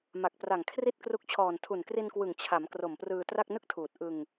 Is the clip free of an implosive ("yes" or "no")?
yes